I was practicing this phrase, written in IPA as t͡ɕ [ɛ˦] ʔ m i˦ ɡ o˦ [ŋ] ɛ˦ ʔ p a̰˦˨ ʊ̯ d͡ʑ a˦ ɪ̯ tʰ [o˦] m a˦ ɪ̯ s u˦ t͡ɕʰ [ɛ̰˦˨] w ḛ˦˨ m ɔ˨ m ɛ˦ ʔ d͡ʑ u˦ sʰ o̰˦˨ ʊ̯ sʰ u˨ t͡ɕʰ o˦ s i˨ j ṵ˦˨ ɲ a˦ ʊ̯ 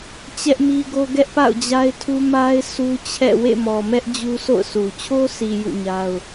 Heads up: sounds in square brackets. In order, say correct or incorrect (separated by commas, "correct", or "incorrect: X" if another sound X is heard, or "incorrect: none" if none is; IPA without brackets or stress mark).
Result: correct, incorrect: ɡ, incorrect: u˦, correct